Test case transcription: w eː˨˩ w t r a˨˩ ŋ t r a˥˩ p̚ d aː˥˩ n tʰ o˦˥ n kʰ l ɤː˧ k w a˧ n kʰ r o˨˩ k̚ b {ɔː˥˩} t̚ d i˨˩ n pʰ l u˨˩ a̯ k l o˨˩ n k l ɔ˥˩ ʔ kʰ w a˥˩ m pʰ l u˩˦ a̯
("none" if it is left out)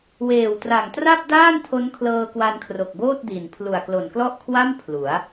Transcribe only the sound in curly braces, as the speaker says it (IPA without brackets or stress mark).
oː˥˩